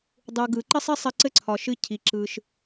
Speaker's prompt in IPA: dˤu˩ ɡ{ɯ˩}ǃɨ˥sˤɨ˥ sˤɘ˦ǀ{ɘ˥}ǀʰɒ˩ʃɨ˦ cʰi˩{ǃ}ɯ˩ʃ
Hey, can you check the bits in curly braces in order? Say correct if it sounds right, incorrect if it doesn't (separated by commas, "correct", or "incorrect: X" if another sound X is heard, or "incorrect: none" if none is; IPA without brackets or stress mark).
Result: correct, correct, incorrect: ǁ